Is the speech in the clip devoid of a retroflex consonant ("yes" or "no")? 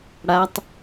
no